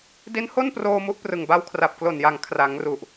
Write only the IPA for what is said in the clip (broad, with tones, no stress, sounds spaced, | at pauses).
d i˦˥ n h o˥˩ n p r oː˧ m u˦˥ ʔ p r ɯ˨˩ ŋ b a˦˥ w kʰ r a˨˩ p̚ k l o˨˩ n j a˨˩ ŋ kʰ r a˩˦ ŋ r u˨˩ ʔ